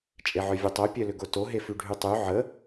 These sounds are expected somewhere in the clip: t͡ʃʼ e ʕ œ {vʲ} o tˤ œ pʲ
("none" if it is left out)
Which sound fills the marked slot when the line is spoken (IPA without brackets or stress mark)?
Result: vʲ